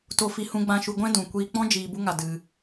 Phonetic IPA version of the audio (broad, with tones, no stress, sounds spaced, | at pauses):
t o˧ f i˧ h ũ˧ ɡ͡b ã˧ ʃ u˧ ɡʷ ɛ̃˦ d ũ˨ kʷ iː˧ k͡p ɔ̃˦ d͡ʒ iː˧ b u˦ ŋ a˧ d ɨ˧